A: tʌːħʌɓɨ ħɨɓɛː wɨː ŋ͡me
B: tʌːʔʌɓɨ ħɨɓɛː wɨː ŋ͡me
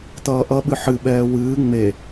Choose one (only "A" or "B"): B